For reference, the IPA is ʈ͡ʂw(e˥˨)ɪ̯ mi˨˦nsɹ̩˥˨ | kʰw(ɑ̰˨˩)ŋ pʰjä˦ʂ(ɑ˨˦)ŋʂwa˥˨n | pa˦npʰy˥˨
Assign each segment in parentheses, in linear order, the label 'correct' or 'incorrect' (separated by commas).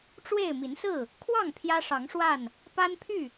correct, incorrect, correct